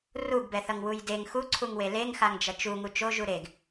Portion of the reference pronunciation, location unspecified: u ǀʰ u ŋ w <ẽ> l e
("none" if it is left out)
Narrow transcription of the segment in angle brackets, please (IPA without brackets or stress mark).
e